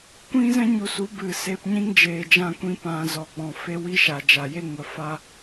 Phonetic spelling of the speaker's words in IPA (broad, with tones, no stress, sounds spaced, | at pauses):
kʷ ĩ˦ z ɛ̃˦ ɲ u˨ s u˨˦ b ɨ˨ s e˧ p ɲ ĩ˦ ŋ d͡ʒ eː˨ d͡ʒ ã˧ kʷ ĩ˧ p ã˨ z ɔ˨ ɡ͡b ɔ̃˨ f e˦ w i˦ ʃ a˨ d͡ʒ a˨ j e˦ ŋ ə˨ f a˦